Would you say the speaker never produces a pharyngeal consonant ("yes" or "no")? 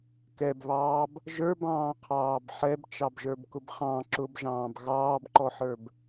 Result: no